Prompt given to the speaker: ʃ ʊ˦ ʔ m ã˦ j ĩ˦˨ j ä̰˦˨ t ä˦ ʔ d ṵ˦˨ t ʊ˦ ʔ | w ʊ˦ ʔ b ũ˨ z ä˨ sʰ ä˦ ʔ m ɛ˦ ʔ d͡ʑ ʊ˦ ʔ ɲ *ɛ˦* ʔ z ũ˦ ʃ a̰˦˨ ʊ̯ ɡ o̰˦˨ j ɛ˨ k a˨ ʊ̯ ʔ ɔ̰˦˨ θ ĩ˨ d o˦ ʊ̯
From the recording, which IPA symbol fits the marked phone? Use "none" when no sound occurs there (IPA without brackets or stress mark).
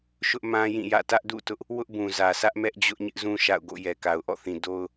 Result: ɪ˦